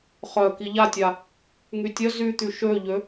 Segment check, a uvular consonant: present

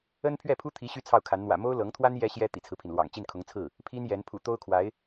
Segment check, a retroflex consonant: absent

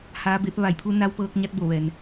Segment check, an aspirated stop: present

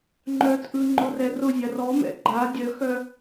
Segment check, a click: present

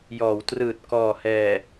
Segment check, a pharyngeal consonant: absent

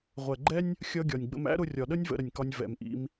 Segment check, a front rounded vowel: absent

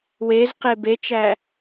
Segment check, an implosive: absent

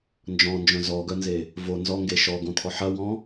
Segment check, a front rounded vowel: present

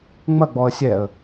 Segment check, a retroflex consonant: absent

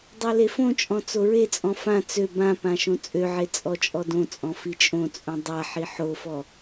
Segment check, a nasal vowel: present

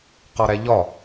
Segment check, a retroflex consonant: absent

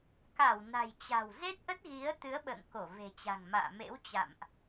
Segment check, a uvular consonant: absent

